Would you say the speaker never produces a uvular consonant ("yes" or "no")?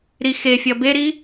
yes